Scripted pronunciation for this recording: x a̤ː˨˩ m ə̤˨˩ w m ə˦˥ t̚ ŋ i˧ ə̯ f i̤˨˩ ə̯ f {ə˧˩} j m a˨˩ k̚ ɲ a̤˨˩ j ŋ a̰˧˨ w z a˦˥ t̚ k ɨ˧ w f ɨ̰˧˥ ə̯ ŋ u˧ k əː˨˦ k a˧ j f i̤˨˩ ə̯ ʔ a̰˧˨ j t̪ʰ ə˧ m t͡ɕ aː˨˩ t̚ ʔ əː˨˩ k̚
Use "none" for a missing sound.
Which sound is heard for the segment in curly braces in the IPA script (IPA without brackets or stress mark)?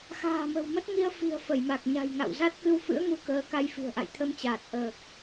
ə˧˩